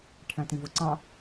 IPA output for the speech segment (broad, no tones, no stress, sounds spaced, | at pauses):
ʈʰ æ̃ t ĩ v ʊ ǀ ɑ̃